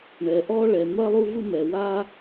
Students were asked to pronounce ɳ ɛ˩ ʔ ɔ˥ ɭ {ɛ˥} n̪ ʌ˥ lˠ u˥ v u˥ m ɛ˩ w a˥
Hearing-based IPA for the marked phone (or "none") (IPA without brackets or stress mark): ɛ˩